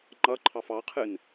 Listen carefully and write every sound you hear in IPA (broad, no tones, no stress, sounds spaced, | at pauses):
ŋ͡ǃ ʌ ǃʰ ɑ f ɑ qʰ ɨ n